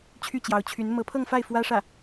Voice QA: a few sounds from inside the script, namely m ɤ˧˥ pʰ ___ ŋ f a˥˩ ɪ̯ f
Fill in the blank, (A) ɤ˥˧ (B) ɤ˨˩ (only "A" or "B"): A